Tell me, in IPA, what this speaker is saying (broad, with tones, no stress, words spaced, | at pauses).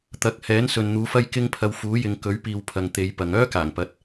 t̪ɐ˨˥k̚ hɛː˨˥nsɵ˨nn̪uː˨˧fɐ˥j kɪ˥ŋ pʰɐ˧wfuː˨˥jɪ˨˧ŋ kɵ˨˥ɥpiː˨w pʰɐ˨ŋt̪e˨˧jpɐ˨ŋ œː˥kaː˨˩ŋpɐ˨˥t̚